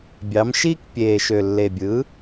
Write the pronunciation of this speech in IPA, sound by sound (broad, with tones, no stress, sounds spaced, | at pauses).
bʲ ɑ˩˥ m ʃ iː˥ k pʲ eː˨˩ ʃ ø˨˩ lː e˨˩ bʲ ɯː˩˥